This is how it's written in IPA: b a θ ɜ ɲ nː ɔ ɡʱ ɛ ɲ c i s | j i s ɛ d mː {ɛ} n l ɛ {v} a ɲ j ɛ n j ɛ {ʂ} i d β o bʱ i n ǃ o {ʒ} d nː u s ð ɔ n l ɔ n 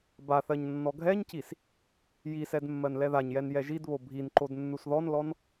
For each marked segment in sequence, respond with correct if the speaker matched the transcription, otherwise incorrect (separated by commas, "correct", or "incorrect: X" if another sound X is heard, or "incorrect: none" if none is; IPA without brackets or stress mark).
incorrect: ɜ, incorrect: ð, incorrect: ʒ, incorrect: none